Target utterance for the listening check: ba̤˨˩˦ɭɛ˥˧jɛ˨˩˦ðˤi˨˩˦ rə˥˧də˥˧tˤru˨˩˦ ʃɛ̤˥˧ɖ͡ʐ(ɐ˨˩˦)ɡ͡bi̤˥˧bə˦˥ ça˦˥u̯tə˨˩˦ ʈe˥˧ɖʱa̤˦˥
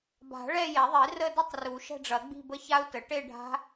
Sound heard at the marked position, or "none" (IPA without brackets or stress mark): ɐ˨˩˦